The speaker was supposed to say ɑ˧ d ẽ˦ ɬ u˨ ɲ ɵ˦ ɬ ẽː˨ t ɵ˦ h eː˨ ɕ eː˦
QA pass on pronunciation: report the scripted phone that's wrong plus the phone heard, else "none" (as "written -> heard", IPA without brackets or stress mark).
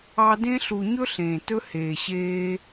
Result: none